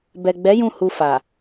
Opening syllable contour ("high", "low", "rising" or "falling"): low